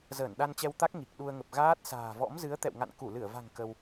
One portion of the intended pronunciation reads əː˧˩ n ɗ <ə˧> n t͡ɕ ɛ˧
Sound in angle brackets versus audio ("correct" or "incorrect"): incorrect